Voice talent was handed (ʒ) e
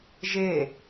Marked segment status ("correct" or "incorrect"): correct